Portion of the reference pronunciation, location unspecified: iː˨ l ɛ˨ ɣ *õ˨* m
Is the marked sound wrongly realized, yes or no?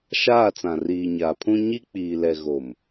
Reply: yes